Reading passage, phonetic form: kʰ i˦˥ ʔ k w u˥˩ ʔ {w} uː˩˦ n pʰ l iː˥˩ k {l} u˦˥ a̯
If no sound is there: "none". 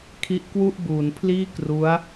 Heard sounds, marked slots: b, r

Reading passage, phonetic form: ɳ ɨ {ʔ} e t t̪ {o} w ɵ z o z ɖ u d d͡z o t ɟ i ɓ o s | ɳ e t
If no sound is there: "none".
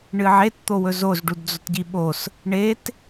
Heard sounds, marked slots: ʕ, o

